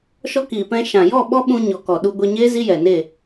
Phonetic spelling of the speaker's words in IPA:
ʃ ɔ˧ k iː˨ p ɛ̃˧ ʃ ã˨ j ɔ˦˨ ɓ ɔ˦ ɓ ũ˧ ɲ ɔ˨ k ɔ˨ ɗ u˧ ɡʷ e˧ ɲ eː˦ z i˦ j ɛ˨ n e˦˨

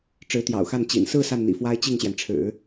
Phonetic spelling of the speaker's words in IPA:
ʈ͡ʂ ɻ̩˧˥ t̪ j ɑ̰˨˩ ʊ̯ x a˥˩ n t͡ɕ ḭ˨˩ n s ɹ̩˥˧ s a˥˩ n n̪ ḭ˨˩ f w a˥ ɪ̯ t͡ɕ i˥˩ ŋ ɕ j ɛ˩ n ʈ͡ʂʰ ɻ̩˨˩˦

